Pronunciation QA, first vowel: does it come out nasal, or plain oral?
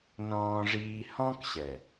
nasal